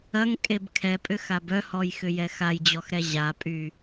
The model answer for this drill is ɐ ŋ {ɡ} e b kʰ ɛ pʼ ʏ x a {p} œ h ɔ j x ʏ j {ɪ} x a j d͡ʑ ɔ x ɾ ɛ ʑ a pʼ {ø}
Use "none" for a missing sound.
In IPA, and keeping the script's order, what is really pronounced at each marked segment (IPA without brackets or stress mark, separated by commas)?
kʼ, b, ɛ, y